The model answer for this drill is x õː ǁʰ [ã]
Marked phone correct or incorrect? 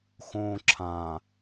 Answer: correct